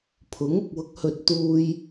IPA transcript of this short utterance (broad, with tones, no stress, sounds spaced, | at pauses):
pʰ ʊ˨˥ ŋ ʊ˨ k̚ w ʊ˨˥ k̚ h ɵ˨ t̚ t̪ uː˧ j